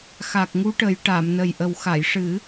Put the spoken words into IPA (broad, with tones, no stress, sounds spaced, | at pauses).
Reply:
x a˨˩ k̚ ŋ u˧˥ ʈ ə˨˩˦ j ʈ a˨˩˨ m n ə˨˩ j ʔ ə˨˩ w x a˨˩˨ j ʂ ɨ˨˩˦